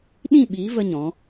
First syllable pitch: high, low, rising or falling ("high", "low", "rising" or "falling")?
falling